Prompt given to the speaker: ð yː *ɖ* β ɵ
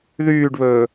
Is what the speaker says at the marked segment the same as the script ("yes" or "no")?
yes